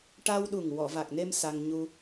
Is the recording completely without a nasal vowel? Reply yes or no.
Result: yes